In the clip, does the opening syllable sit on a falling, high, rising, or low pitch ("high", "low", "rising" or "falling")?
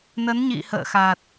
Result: rising